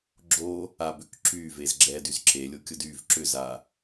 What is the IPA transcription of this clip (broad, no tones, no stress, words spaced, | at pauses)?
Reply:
ɡ͡ǁo | abʏk ǁyvez ɡ͡ǁɛd yzǁelʲokʲʊd yv ǁʏza